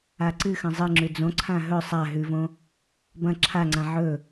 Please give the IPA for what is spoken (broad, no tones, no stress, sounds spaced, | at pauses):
a ǀ ɨ x ɐ̃ zˤ ɨ ŋ͡ǁ ʉ d͡z õ ǀʰ ã ɦ ɵ sˤ a ɦ ʉ v õ | b ɐ̃ ǁʰ a ŋ͡ǀ ã ʕ ɵ